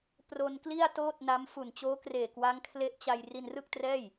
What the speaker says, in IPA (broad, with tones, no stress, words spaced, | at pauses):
pro˧nkli˥˩a̯toː˥˩t̚ na˦˥mfu˨˩n t͡ɕoː˦˥kreː˨˩ kwa˦˥ŋkʰle˦˥ʔt͡ɕa˧j ri˧nrɯ˥˩k̚trɛː˥˩j